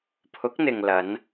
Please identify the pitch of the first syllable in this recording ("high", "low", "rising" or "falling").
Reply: rising